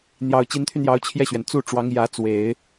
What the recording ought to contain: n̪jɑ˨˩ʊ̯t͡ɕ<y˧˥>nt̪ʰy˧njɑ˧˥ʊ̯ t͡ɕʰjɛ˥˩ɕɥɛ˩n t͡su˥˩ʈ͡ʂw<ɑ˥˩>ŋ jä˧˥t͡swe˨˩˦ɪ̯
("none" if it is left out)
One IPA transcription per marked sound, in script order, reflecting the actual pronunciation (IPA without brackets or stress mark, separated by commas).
i˧˥, ɑ˧˥